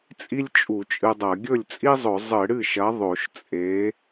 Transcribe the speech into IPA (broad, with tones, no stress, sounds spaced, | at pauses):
t͡sʼ i˥ lʲ t͡ʃʼ u˧˩˧ t͡ʃʼ ɨ˧ dˤ ɐ˧˩˧ ɡʲ ɵ˥˩ lʲ t͡sʼ i˥ zˤ ɵ˧˩˧ zˤ ɨ˧˩˧ ɽ ɨ˥˩ ʃ ɐ˨˥ ðˤ o˧˩˧ ʃ t͡sʼ e˨˥